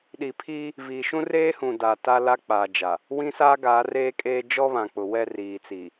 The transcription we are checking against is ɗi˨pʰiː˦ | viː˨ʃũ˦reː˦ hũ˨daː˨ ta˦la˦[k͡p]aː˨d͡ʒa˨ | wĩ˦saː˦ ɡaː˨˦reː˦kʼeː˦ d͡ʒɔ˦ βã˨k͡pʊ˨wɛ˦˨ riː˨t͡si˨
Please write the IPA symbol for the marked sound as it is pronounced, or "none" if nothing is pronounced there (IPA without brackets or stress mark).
k͡p